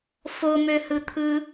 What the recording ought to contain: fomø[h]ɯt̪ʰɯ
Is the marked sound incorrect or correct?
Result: correct